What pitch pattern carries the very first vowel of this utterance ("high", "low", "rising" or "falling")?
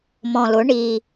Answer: low